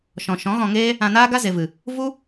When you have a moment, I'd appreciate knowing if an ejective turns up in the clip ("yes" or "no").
no